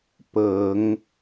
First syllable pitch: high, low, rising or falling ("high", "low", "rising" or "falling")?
low